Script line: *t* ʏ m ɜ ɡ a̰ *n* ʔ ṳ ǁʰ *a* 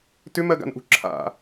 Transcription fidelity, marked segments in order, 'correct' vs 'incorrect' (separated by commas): correct, correct, incorrect